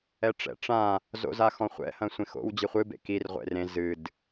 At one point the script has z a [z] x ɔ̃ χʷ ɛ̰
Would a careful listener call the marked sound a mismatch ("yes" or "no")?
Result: yes